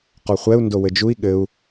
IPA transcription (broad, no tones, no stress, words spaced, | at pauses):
qɔχʷɛu̯ ndowɘd͡ʒui̯ ɠɘu̯